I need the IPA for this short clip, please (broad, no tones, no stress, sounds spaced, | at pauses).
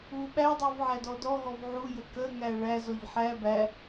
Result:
u ɓ æ dˤ u v ʕ æ d ɔ d ɔ ɦ ɔ v ʕ u j ə k ə ŋ æ ɭ æ z ɔ ʎ ħ æ b æ